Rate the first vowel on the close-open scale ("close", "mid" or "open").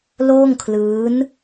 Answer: mid